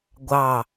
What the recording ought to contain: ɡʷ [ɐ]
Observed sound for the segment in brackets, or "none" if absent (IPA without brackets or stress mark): ɑ